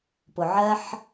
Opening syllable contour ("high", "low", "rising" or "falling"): low